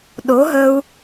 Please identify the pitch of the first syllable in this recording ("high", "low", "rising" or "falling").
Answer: rising